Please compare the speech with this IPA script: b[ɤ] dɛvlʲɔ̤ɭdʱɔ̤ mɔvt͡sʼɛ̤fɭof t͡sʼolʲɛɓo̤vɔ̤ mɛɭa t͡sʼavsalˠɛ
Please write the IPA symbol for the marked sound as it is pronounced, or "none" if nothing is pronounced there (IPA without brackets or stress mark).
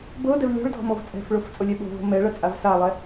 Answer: ɤ